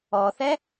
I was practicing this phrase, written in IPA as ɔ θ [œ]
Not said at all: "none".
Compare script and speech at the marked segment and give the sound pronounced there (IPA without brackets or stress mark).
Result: ɛ